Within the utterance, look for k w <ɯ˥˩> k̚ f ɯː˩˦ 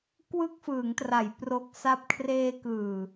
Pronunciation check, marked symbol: correct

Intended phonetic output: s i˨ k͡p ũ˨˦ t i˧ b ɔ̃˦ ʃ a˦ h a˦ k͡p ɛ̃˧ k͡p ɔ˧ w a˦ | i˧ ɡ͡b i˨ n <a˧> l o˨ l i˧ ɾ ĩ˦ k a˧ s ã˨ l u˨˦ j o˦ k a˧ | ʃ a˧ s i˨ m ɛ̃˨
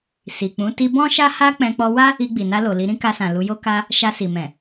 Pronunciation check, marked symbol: correct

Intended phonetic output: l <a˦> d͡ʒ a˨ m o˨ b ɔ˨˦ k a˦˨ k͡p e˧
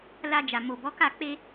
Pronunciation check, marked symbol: incorrect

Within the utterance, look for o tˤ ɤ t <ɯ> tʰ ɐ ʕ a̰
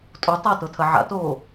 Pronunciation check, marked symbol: incorrect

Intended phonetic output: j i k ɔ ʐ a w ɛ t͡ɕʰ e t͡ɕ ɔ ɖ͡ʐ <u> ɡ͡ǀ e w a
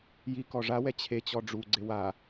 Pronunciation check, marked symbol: correct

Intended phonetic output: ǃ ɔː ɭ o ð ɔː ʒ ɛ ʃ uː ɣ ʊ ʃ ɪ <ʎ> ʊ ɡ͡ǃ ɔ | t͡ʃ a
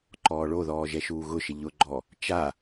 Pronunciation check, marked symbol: correct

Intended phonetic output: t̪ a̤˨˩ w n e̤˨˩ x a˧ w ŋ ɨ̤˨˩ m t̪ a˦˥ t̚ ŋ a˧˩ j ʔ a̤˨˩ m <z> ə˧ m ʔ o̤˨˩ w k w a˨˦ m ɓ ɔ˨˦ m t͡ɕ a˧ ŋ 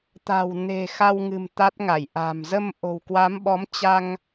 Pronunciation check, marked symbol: correct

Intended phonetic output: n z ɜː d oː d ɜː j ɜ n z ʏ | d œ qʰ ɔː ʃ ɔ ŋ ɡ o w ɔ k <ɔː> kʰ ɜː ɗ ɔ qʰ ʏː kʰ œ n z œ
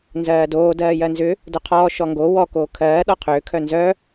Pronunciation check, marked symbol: incorrect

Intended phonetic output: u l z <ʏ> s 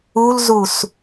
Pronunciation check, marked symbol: incorrect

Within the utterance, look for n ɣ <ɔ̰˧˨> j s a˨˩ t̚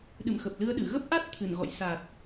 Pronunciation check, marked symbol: correct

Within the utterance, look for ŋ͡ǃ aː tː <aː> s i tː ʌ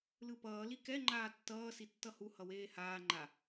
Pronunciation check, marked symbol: incorrect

